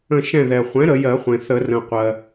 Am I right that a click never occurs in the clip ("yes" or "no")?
yes